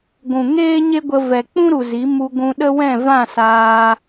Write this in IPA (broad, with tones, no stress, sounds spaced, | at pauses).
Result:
ɡʷ ũ˨ ŋ eː˦ ɲ e˦ ɡʷ ə˧ v ɛ˨ k͡p ũ˦ ɾ u˨ z i˨˦ m u˧ ɡʷ ũ˧ ɗ ə˦ w ɛ̃˦˨ v ã˦˨ s aː˧